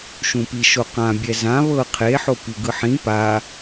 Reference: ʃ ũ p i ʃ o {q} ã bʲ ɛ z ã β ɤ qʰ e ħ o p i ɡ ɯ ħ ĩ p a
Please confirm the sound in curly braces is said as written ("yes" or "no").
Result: yes